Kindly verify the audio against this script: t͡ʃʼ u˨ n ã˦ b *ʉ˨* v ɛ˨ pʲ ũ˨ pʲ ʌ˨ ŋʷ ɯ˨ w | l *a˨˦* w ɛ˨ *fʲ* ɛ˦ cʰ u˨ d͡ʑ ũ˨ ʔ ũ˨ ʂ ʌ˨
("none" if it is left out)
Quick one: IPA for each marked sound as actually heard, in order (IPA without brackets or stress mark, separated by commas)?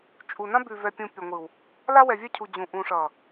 ʉ˨, a˦, vʲ